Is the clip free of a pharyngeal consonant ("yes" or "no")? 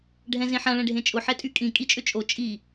no